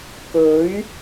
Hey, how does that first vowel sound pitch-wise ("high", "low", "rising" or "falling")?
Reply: rising